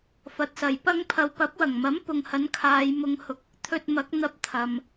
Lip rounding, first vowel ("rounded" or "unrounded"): unrounded